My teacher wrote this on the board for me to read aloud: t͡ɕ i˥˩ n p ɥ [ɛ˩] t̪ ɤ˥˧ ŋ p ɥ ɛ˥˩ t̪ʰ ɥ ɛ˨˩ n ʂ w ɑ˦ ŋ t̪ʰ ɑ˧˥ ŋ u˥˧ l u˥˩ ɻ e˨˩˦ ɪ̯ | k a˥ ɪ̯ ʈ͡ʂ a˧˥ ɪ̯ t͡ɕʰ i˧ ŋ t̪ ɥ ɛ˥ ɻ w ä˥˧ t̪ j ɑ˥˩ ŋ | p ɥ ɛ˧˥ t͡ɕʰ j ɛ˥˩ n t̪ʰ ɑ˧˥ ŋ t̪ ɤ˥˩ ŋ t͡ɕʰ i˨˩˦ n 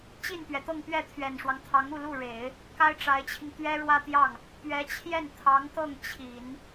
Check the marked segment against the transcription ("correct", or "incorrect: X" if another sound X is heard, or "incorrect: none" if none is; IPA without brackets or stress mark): correct